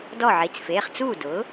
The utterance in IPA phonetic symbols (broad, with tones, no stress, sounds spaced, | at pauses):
d ɔ˥˩ ʕ i˩˧˩ t͡s f eː˩˧˩ χ t͡s uː˥˩ d ʊː˩˥